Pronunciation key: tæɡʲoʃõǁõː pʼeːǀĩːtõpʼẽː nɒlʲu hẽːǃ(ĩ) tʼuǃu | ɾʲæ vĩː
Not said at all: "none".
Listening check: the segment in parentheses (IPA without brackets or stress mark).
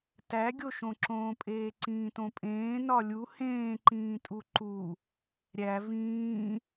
ĩː